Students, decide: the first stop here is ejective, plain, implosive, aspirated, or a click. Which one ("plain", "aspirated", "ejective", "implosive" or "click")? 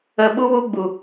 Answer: implosive